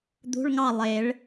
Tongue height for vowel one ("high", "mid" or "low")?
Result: high